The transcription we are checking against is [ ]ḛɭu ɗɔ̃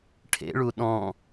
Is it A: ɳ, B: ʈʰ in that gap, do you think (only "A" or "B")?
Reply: B